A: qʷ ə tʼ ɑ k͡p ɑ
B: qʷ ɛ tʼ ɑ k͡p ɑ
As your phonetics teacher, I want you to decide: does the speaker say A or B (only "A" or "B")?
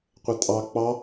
A